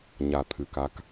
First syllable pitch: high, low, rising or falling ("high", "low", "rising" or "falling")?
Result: low